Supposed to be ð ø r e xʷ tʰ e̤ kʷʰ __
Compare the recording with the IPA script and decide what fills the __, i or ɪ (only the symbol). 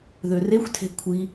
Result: i